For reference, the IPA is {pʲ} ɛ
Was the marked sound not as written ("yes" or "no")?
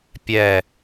no